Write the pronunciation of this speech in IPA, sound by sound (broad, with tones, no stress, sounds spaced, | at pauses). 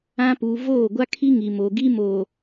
ã˦ p uː˨ v oː˦˨ ɡʷ a˦ kʰ i˦ ŋ i˨ m o˨ ɡ i˦ m oː˨